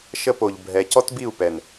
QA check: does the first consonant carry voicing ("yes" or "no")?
no